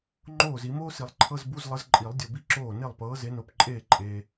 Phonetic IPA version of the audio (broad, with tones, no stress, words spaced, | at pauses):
ŋ͡ǃoː˥˩zi˨˩˦ moː˥si˨˩˦lˠǃʰɤ˧˥˧z bu˧˥˧zlˠə˨˥z ǃʼi˨˩˦lˠ dʲo˨bi˥˩ǁoː˥˩ ne˥˩lˠpɤː˨˥ze˨˥ no˨pǃʼeː˥˩ ǃʼeː˨